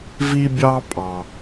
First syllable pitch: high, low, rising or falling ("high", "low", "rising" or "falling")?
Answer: high